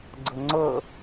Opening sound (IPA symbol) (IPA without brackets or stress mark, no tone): ɡ͡ǀ